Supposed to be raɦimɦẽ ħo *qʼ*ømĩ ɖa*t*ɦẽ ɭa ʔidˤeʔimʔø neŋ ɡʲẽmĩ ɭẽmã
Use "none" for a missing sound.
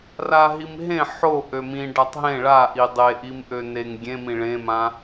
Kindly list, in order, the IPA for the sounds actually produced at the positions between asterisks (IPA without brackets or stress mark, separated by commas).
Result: ʔ, tˤ